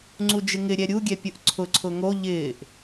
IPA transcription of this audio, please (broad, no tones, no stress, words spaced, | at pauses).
ŋ͡ǀud͡ʒɪŋɪɾʲɛ ɾʲuɡʲɛ pʲʊʔǀʰʊǀʰʊ ŋo ʎɪːʔ